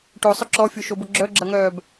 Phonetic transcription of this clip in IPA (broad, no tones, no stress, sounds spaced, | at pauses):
ʈ o sˤ ʊ ǁ ɔ fʲ o ʃ o b ʊ ɡ͡ǁ œ ɡ͡ǁ ɐ ŋ œː b